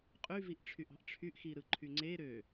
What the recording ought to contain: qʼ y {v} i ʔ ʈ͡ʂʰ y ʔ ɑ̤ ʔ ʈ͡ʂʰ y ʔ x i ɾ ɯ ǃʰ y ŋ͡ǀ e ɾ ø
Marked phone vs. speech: correct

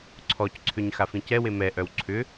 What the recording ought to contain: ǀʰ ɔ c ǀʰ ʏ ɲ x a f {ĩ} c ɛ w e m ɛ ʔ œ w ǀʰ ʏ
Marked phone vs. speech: correct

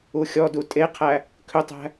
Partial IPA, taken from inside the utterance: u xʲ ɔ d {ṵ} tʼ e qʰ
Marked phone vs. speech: incorrect: u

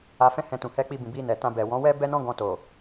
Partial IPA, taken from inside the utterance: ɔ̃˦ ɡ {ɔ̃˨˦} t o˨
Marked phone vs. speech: incorrect: ɔ̃˧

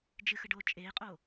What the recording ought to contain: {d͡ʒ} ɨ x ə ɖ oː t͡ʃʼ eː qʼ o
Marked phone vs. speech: correct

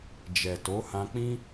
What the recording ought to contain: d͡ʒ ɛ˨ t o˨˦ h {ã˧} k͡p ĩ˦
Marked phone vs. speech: correct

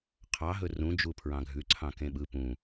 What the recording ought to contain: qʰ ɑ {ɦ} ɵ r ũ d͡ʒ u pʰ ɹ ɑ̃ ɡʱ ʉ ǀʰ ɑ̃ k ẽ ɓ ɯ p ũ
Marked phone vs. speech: correct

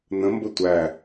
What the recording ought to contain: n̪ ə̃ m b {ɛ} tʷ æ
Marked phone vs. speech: incorrect: ə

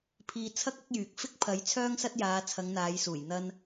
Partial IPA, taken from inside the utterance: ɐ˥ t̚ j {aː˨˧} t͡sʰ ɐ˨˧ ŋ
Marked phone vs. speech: correct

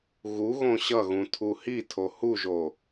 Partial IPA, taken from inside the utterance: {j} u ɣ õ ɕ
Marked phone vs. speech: incorrect: ɣ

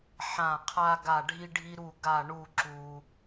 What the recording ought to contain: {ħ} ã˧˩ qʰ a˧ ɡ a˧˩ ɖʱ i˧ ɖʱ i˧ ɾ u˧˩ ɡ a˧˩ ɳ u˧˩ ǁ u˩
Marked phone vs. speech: correct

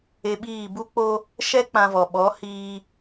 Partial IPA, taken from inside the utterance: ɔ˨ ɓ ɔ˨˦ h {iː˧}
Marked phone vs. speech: correct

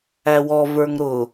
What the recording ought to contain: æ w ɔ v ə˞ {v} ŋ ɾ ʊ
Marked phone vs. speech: incorrect: none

